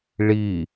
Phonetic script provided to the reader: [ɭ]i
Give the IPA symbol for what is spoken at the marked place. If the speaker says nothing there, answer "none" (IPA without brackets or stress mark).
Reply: ɭ